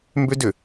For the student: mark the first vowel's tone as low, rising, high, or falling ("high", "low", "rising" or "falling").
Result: high